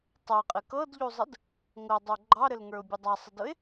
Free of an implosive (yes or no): yes